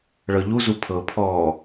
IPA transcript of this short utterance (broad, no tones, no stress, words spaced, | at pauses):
ɭɤʎuzu pʰɤpʰɔː